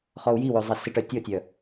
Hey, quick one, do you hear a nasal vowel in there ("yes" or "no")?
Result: no